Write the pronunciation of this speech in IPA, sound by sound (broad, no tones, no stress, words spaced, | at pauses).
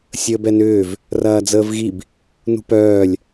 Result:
sʲəːbɛnʏːv | rɐːd͡zəːvɣib | nṳpœːlʲ